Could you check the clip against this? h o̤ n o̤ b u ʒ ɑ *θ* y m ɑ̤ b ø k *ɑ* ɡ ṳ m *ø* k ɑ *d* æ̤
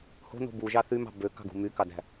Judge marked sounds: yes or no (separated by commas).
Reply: yes, no, no, yes